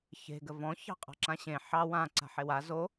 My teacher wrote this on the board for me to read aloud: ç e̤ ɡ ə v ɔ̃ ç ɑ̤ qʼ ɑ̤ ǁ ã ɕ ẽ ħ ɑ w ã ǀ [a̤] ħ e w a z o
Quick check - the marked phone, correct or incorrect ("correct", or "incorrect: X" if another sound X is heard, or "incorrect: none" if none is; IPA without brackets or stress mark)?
correct